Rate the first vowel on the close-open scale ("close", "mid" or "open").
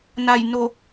open